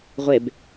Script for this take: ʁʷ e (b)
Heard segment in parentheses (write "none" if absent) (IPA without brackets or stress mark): b